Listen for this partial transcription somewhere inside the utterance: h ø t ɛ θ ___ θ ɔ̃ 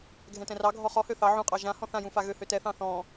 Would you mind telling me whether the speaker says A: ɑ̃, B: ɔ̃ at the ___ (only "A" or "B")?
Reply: A